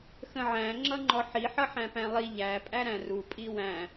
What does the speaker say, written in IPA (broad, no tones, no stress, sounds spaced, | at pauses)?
x ə̃ ʕ æ̃ ŋ͡ǁ ʌ ŋ͡ǃ ɔ ħ i ħ ʌ ħ æ̃ p æ̃ lˠ i ʎ æ pʼ æ ɾ æ̃ r u pʼ i w æ̃